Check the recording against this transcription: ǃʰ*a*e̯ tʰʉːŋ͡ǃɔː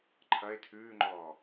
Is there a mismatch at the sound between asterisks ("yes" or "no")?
yes